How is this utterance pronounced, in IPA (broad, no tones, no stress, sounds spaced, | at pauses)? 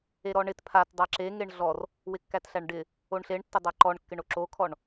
e ɾ ɔ ɳ ɪ t pʰ a t dˤ a ǁ e ŋ e ɳ ɮ ɔ r | w ɪ kː æ t ɬ æ ɳ ɖ ɪ | o ɳ ɬ e ɳ tː ɪ dˤ a ǃ ɔ ɳ kː ɪ ɳ o ǁ o kʰ ɔ ɳ